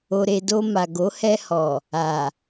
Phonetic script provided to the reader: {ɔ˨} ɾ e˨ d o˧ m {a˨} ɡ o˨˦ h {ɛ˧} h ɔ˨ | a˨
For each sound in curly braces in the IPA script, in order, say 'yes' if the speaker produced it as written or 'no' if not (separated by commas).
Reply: no, yes, yes